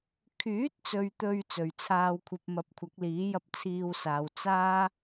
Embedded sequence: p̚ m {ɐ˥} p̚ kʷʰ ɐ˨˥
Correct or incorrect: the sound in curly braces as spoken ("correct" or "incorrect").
incorrect